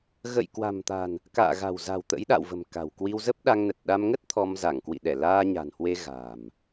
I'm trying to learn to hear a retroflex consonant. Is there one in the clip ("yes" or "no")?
no